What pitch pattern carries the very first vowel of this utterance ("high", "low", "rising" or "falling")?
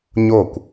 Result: falling